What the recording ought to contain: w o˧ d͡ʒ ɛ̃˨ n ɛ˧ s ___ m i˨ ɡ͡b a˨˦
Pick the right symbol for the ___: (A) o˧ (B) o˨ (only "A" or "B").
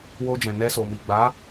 B